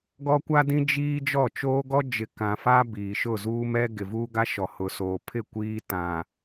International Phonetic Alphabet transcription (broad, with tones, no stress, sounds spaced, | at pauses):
ɡ ɔ˦ kʷ a˦ d ĩ˦ d͡ʒ iː˦ d͡ʒ ɔ˦˨ t͡ʃ oː˦ ɡ ɔ˦ d͡ʒ ɪ˨ k ã˨ f a˦ b iː˨ ʃ ʊ˦˨ z uː˦ m ɛ˦ ɡ ɪ˨ v uː˦ ɡ a˦ ʃ ɔ˨ h ʊ˨ s oː˨ pʰ ɪ˦˨ kʷ iː˦ t ã˨